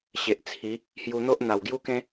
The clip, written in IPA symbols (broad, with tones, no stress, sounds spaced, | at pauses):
ɕ e˨ ʔ t͡sʰ i˨˦ | h j u˧ n̪ o˦ ʔ n̪ a˨˩ w ɡ j u˦ k ẽ˦